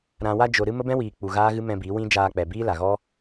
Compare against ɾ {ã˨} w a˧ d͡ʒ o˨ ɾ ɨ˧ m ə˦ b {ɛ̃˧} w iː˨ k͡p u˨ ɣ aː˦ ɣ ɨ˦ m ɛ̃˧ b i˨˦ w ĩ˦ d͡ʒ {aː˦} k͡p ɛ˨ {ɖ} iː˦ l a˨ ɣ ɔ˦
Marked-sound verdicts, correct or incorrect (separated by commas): correct, incorrect, incorrect, incorrect